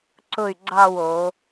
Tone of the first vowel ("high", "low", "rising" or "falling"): falling